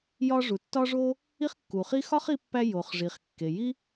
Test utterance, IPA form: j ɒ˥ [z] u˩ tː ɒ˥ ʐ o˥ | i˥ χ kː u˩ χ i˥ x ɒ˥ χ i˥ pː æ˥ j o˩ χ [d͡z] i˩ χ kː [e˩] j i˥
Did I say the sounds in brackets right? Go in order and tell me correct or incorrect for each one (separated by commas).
incorrect, incorrect, correct